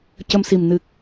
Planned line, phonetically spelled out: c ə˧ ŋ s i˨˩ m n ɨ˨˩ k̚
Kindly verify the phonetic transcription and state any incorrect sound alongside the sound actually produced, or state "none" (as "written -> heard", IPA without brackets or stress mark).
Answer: ŋ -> m